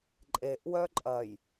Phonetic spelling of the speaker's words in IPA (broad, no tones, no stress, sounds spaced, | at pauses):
ǃʼ e ʔ w œ ǃʼ ɐ j